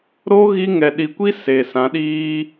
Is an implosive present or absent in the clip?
present